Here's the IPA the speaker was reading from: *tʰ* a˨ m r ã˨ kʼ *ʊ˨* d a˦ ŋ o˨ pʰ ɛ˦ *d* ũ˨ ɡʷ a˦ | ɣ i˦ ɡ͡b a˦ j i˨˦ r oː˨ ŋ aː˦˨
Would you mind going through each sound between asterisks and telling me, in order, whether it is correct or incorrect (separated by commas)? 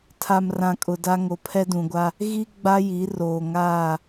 correct, correct, correct